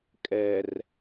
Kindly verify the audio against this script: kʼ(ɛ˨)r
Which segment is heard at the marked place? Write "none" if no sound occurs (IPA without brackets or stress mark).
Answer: ɛ˨